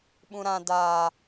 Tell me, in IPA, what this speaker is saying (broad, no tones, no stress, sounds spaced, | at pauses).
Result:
ɓ ũ ɾ ã d a